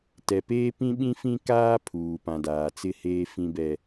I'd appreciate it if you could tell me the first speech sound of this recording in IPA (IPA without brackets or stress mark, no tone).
t